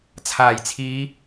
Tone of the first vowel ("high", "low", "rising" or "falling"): low